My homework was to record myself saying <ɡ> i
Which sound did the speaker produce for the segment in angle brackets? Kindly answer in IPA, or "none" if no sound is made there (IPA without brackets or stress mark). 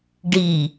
ɖ